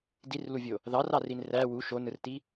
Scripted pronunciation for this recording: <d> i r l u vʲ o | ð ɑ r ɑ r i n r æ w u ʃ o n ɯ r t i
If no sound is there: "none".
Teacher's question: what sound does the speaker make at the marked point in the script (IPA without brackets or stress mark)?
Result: d